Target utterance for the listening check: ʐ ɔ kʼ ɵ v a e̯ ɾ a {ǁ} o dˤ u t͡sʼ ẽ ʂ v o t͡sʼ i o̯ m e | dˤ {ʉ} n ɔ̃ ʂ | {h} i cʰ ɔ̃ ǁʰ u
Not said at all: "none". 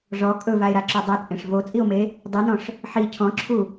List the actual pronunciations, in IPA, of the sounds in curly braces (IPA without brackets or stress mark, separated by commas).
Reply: ǁ, ʉ, ħ